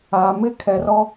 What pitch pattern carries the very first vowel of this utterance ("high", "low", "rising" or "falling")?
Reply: low